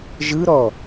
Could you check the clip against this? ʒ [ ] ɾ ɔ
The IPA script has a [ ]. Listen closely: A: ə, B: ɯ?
B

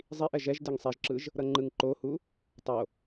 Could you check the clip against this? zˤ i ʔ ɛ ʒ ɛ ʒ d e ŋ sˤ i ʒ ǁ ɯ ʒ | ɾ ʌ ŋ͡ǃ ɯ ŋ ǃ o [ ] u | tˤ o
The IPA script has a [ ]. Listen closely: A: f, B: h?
B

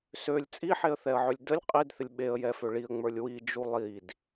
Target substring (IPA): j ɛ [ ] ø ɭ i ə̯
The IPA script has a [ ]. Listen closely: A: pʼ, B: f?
B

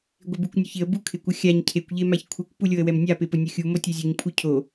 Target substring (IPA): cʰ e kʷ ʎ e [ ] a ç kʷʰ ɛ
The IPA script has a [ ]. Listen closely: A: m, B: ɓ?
A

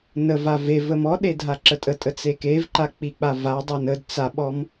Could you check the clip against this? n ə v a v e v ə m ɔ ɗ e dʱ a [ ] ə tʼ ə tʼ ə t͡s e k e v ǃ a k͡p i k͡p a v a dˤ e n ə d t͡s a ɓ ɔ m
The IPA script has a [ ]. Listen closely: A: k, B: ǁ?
B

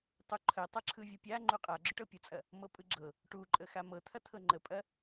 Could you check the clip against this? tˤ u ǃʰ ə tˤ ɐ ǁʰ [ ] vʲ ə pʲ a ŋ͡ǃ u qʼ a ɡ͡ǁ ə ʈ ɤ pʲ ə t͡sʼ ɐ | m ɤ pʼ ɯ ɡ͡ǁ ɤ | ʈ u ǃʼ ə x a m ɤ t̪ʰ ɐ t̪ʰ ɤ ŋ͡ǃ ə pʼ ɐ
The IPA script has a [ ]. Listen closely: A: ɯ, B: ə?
A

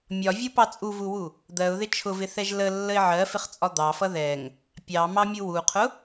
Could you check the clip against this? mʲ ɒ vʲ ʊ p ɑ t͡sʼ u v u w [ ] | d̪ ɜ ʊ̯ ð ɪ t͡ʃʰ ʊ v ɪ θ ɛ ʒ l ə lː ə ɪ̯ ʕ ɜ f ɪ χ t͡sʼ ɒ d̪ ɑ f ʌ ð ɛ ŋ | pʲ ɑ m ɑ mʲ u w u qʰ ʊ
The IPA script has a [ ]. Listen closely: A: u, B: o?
A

